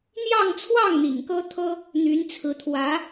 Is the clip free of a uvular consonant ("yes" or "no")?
yes